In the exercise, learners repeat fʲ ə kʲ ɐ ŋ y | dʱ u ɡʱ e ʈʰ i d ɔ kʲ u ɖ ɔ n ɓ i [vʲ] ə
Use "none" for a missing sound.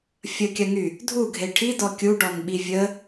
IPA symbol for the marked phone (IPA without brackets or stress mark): vʲ